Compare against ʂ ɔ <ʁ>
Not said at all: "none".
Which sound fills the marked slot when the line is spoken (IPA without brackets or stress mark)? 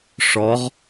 ʁ